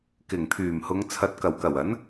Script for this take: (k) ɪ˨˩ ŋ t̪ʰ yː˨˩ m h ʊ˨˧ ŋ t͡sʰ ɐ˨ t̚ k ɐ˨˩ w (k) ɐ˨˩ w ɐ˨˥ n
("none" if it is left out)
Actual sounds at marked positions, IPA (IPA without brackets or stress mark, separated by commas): k, k